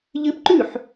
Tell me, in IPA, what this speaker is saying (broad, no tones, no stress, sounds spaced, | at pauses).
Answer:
ʎ ɨ p ǃ ʉ ħ